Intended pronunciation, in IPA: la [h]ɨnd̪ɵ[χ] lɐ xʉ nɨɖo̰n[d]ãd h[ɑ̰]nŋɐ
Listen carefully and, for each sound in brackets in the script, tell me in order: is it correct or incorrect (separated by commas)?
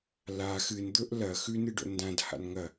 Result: incorrect, incorrect, correct, incorrect